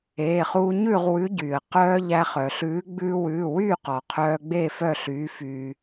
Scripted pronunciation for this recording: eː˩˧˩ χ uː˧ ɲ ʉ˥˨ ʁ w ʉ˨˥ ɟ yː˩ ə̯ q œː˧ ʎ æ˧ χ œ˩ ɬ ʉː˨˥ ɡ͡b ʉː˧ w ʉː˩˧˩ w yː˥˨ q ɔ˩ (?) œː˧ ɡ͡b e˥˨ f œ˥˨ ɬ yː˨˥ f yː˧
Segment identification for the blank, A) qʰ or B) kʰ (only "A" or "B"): A